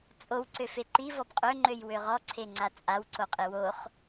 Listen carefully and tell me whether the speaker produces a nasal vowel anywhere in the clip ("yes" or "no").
no